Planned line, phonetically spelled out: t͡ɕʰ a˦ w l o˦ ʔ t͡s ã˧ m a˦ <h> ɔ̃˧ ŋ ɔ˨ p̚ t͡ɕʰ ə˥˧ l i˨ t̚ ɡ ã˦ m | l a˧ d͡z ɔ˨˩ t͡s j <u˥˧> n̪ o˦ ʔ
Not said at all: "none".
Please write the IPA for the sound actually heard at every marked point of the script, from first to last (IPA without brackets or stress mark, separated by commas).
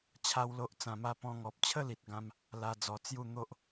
p, u˥˧